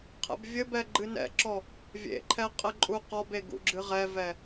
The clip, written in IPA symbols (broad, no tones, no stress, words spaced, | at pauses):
qʰɛ̰bvʲɘbɛ ɡ͡ǃɨnɛ̰ǁɔ | vʲḛǃʰɛ qʼɘǃʼuqɔbe ɡṵɡ͡ǁɨʁɛvɛ